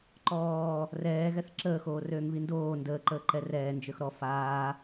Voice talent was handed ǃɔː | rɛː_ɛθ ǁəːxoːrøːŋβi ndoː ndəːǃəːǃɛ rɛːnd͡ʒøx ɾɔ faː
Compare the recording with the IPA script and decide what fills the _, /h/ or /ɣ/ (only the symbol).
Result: ɣ